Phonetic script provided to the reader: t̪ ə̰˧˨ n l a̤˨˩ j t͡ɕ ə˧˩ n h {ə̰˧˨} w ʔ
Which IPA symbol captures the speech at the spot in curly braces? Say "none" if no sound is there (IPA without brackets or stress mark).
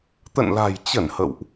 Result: ə̰˧˨